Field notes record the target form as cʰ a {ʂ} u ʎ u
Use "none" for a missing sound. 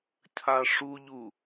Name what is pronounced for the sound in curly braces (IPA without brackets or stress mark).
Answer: ʂ